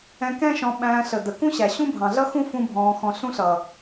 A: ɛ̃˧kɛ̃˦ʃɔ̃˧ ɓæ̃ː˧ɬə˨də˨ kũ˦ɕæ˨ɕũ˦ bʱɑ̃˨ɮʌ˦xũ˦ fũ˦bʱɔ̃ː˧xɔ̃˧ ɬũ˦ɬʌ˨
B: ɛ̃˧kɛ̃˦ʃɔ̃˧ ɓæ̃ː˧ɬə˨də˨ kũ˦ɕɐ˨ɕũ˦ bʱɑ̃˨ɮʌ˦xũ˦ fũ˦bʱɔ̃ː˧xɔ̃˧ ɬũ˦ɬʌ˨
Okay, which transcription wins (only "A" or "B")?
A